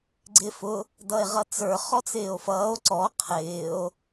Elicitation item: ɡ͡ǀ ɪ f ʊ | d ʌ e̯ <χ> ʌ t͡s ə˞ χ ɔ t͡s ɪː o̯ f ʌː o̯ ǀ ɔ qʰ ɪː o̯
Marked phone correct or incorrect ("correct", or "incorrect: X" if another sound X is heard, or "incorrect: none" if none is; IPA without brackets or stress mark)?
incorrect: ʁ